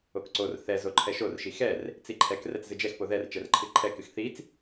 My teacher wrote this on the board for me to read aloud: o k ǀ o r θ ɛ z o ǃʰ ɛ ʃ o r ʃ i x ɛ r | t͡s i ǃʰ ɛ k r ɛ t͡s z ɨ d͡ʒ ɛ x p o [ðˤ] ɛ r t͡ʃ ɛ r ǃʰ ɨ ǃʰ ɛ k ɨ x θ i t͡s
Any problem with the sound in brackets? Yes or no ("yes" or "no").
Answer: yes